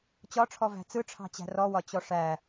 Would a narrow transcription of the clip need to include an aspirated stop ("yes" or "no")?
yes